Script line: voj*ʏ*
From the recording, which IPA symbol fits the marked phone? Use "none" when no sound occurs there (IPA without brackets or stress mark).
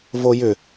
ʏ